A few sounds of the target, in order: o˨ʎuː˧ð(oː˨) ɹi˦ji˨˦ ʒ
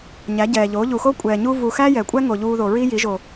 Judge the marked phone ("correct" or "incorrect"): incorrect